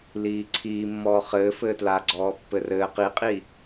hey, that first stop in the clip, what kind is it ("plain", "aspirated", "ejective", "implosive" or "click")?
click